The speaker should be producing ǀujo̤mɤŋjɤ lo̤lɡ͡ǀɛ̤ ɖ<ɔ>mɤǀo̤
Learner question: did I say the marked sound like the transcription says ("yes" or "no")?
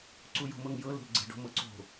no